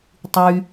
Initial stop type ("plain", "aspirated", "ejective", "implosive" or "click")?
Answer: plain